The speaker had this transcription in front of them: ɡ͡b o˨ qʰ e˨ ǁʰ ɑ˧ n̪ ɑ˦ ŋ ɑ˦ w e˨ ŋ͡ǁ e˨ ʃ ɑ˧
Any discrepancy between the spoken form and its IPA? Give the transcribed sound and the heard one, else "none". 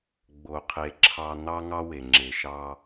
none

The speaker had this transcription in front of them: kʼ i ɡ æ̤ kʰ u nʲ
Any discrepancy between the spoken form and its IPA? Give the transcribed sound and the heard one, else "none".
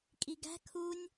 none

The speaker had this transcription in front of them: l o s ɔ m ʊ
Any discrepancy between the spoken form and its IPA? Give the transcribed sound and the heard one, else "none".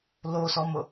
none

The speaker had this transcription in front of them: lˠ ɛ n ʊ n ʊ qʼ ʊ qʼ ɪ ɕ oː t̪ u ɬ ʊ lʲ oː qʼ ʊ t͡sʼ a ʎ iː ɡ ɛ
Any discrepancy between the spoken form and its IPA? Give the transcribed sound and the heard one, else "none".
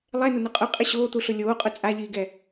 none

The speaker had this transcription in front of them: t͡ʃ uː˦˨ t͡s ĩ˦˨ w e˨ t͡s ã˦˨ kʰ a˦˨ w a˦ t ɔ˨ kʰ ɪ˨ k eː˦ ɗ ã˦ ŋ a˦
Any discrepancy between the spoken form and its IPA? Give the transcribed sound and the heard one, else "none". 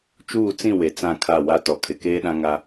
none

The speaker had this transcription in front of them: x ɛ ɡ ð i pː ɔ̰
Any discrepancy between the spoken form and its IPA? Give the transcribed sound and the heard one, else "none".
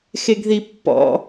ɛ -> e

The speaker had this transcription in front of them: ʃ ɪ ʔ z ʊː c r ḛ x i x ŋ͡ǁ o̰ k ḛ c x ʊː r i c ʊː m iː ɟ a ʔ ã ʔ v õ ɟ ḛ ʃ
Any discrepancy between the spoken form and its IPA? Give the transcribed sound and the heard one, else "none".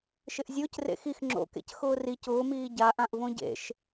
z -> zʲ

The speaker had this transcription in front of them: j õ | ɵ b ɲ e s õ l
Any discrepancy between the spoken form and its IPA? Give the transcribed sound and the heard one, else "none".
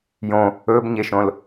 s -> ʃ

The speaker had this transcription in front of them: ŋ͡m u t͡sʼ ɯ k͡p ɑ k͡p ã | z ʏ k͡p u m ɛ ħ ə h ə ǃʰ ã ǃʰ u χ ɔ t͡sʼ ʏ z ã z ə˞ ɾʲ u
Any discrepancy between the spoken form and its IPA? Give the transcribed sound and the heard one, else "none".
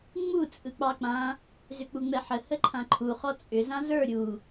m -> ŋ͡m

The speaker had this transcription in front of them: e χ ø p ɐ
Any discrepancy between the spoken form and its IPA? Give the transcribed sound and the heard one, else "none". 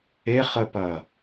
ø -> ə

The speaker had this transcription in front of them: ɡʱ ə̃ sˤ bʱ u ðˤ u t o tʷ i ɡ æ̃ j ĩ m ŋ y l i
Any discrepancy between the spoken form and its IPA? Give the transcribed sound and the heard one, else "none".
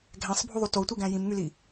ə̃ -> æ̃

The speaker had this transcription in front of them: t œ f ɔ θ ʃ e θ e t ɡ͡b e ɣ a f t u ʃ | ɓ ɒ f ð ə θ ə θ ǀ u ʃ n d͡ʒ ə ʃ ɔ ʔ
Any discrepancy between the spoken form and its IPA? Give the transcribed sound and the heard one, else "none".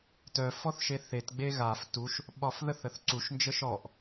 none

